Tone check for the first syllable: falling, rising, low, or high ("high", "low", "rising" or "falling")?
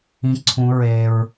high